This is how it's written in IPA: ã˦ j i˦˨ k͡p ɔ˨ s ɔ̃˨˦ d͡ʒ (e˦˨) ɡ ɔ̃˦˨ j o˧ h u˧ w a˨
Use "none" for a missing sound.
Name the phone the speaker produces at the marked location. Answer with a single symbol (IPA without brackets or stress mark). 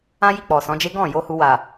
e˦